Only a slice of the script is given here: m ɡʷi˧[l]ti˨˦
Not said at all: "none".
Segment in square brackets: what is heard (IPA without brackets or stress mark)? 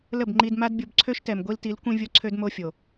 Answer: l